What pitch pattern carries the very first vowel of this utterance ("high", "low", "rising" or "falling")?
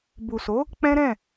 low